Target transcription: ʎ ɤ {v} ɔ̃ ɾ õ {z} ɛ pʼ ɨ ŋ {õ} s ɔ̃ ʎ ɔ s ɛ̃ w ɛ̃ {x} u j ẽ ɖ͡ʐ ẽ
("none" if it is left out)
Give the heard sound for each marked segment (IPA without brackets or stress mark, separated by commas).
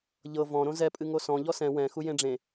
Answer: v, z, o, x